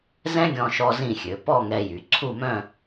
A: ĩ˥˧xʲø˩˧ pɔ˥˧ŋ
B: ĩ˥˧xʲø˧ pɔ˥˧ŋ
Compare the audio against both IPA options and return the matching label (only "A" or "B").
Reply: A